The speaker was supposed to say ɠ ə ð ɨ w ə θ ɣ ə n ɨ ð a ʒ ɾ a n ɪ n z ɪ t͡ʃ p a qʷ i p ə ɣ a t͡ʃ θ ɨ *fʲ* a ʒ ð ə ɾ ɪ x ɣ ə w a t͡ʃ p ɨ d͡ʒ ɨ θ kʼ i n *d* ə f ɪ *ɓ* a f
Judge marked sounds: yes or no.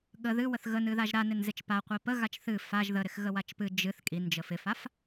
no, no, no

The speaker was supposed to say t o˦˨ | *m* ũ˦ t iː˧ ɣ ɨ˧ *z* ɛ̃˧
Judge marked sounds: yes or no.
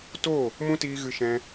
yes, no

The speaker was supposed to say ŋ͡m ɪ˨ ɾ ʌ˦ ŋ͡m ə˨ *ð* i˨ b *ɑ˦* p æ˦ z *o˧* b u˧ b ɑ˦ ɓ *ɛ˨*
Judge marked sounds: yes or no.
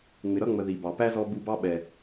yes, no, no, yes

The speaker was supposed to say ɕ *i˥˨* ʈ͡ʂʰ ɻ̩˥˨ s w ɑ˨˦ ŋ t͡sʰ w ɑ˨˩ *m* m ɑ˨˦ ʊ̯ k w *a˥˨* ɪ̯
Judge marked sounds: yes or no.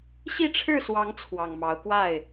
yes, no, yes

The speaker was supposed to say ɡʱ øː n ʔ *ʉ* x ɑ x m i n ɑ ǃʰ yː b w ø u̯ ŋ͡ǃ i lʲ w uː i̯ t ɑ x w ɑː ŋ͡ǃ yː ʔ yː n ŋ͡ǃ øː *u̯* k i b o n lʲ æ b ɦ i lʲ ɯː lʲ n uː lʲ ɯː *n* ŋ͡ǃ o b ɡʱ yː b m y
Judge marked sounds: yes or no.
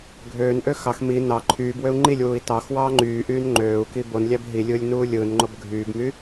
no, yes, yes

